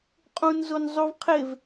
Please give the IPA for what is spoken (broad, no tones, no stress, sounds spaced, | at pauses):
qʼ ũ n z o n zˤ u v qʰ e v